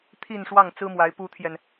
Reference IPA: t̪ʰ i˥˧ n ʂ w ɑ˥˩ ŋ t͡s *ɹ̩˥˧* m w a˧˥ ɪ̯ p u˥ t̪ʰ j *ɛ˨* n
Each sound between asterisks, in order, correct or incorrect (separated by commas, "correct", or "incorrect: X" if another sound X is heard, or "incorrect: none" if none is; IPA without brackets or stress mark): incorrect: ɹ̩˥, correct